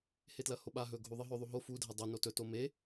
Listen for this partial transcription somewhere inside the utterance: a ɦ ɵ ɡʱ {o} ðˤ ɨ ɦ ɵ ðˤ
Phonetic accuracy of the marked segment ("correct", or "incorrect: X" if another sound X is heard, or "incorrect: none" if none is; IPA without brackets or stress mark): incorrect: u